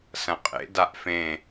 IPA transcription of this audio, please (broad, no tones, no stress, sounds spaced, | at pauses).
s ɐ̃ qʼ ḛ d a ʔ f ẽ